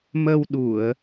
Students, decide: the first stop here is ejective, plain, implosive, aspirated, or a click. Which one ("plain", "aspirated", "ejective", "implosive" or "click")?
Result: implosive